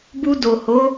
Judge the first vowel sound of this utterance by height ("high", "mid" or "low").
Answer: high